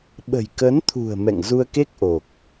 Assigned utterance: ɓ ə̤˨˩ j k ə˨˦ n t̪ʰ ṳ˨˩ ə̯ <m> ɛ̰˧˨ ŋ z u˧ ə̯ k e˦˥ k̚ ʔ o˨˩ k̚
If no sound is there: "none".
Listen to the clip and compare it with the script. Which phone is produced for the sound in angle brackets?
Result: m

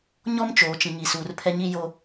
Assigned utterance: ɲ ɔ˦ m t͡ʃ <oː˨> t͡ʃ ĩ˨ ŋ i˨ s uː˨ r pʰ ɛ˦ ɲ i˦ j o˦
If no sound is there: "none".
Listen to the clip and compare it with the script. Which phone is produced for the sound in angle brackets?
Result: oː˨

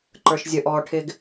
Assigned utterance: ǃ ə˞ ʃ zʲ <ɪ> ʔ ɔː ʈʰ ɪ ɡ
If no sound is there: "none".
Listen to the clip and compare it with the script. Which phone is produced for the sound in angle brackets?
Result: ə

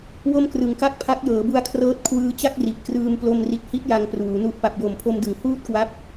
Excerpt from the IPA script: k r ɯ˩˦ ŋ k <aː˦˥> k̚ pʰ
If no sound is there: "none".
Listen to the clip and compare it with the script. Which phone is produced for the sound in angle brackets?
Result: a˦˥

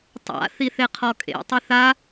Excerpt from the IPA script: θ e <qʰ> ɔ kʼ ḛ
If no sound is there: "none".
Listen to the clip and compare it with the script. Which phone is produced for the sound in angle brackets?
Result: qʰ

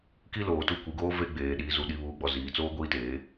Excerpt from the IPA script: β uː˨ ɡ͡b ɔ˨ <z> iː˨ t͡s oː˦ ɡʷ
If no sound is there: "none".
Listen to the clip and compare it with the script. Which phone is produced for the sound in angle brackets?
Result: z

